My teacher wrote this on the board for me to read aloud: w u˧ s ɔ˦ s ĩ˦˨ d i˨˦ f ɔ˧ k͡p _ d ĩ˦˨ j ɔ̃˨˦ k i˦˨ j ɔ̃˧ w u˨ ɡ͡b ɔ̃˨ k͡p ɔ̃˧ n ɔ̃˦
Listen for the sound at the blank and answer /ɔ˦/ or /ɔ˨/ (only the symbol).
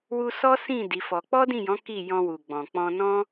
ɔ˦